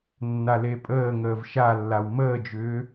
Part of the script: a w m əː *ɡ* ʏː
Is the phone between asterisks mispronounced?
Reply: yes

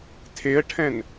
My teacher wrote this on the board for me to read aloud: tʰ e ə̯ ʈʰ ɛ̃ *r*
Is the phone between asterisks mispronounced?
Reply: yes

